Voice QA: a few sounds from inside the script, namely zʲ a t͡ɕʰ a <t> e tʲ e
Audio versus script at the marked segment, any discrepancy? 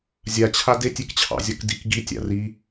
yes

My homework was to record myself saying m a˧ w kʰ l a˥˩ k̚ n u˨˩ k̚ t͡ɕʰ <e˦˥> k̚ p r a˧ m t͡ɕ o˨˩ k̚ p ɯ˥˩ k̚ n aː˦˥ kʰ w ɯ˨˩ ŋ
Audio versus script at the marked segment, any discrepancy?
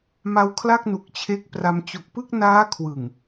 no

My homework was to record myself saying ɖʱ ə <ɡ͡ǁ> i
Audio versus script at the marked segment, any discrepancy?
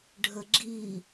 no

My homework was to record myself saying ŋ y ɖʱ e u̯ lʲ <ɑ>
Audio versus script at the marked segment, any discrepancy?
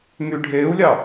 no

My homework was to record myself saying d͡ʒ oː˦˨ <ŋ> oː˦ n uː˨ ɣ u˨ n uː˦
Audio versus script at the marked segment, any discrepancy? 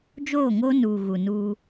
no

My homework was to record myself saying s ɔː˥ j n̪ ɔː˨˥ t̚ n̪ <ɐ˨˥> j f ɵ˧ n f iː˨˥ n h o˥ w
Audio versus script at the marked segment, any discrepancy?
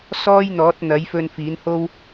no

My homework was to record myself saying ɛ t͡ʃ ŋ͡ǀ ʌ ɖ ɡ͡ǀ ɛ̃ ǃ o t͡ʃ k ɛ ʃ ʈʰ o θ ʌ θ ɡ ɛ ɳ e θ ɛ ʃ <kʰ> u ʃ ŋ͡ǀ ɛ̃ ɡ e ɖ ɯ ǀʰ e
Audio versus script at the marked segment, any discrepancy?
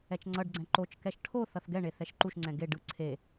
yes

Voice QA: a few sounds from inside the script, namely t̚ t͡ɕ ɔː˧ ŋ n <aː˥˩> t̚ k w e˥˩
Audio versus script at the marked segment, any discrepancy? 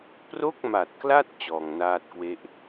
no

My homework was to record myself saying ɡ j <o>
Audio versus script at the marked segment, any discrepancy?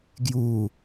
yes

